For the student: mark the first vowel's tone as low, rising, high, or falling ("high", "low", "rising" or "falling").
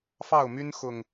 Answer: falling